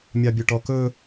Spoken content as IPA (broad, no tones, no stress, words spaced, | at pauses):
mʲɑbʲɵʈɔkɵ